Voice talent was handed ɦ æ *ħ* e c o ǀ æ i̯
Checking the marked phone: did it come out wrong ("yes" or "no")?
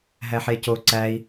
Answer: no